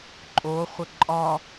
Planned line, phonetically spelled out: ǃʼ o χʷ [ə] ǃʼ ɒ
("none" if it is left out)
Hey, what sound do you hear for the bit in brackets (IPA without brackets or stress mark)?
ə